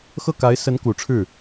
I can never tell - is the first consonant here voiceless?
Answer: yes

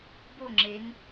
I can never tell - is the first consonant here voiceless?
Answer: no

